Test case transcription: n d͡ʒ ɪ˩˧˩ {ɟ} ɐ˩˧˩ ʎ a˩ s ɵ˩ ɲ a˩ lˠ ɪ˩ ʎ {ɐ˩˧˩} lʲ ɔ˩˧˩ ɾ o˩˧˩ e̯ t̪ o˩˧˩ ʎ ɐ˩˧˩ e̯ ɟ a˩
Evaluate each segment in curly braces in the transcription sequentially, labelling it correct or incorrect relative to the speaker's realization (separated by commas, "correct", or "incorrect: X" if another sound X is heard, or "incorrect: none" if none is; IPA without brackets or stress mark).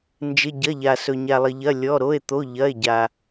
correct, correct